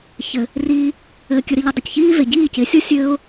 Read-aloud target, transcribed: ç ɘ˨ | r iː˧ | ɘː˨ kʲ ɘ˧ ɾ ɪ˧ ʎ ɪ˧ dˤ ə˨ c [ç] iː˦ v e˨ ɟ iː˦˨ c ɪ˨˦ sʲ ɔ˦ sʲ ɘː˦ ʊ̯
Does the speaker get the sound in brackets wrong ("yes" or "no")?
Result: no